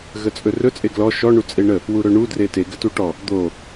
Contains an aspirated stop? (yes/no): no